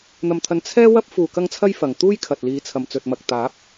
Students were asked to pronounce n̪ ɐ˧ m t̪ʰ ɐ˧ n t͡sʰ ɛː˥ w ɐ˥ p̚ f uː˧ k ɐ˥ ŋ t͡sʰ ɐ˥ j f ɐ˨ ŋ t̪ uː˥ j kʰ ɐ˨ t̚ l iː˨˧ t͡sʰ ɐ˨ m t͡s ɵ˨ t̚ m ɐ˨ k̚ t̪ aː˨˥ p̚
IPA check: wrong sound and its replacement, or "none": none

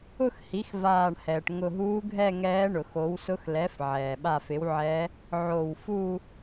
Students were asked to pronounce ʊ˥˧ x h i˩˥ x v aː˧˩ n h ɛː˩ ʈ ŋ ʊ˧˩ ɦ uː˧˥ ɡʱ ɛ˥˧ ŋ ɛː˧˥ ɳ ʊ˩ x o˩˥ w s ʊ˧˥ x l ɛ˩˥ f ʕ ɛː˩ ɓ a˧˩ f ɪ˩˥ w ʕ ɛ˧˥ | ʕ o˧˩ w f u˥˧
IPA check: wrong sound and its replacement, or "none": n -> ɳ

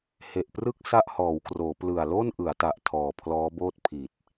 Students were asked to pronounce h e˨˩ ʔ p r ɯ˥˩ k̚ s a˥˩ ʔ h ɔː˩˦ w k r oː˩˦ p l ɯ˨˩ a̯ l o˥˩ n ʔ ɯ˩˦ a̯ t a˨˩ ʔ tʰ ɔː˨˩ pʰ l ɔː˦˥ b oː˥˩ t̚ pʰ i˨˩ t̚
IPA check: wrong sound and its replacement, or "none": none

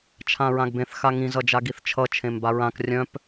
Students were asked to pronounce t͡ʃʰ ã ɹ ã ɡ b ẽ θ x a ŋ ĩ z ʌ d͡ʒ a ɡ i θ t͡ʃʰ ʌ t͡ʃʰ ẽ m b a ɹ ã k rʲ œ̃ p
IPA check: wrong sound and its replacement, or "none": none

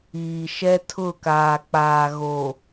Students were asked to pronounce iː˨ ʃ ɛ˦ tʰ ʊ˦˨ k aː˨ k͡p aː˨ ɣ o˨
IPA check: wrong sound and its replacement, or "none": none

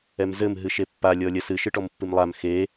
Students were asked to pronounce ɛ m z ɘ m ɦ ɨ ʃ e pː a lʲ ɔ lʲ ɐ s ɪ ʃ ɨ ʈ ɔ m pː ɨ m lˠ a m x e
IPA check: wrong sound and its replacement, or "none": ɪ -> ɨ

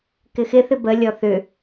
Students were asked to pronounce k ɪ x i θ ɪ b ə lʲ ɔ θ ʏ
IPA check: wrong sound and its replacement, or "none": i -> ɪ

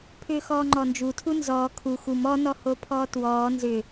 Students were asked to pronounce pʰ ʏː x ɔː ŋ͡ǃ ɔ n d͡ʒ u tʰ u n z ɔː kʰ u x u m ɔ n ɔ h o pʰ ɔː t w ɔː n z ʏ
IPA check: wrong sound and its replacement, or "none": none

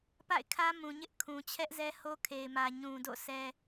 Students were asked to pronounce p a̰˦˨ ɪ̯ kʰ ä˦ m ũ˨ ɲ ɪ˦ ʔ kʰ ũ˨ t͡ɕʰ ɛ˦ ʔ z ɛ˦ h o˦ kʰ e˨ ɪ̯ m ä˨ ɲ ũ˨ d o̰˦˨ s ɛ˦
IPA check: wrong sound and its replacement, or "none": none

